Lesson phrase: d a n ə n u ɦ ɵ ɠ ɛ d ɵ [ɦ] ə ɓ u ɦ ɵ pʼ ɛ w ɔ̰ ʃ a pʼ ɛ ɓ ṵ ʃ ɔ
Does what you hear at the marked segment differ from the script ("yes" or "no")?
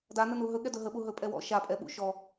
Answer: no